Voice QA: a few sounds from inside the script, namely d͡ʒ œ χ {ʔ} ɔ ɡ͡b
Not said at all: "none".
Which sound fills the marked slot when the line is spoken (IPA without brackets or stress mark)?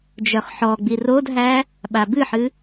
ħ